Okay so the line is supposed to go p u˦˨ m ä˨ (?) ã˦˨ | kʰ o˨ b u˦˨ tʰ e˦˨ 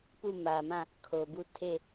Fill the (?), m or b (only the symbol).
m